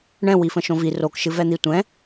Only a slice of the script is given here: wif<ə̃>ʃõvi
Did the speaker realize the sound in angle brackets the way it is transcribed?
yes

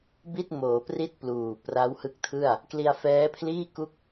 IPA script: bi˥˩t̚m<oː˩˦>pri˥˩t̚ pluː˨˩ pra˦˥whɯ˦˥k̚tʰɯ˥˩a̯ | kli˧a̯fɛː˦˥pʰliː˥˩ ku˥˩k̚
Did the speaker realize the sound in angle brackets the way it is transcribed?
yes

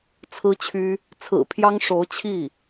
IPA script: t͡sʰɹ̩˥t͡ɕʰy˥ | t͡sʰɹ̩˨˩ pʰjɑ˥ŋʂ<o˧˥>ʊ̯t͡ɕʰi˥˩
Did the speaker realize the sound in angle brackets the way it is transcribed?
yes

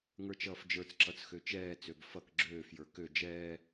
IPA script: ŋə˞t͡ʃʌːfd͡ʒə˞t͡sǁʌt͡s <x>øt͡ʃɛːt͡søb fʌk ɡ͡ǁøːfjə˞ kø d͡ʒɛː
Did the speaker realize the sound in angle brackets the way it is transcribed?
yes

